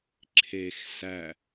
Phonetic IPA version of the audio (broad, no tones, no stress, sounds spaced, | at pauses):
ǁʰ e x s æ